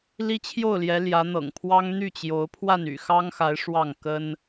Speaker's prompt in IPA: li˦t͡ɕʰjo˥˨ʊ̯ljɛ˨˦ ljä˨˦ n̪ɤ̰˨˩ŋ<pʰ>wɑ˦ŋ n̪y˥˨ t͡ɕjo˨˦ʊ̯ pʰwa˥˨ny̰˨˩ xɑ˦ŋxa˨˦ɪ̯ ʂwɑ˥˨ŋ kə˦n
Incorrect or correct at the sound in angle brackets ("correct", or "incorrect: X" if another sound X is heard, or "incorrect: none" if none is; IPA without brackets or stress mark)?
correct